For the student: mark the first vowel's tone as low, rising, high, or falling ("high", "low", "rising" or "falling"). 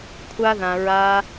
high